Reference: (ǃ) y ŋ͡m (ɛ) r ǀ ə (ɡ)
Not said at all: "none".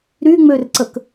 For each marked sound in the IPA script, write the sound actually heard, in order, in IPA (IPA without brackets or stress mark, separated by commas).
ɾ, ø, k